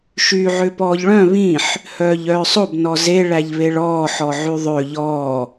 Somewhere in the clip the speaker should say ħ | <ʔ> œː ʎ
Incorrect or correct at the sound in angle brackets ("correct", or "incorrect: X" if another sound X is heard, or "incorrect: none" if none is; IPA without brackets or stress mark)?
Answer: incorrect: h